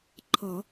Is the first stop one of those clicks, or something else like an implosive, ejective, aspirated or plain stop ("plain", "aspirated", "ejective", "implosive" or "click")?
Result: click